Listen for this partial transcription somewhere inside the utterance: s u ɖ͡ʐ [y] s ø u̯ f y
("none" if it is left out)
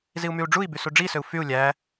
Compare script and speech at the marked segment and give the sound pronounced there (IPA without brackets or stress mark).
i